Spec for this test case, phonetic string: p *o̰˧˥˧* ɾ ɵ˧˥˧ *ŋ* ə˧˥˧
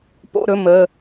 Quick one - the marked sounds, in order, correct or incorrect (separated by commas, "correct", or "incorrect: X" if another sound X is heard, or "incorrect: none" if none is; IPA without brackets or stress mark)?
correct, incorrect: m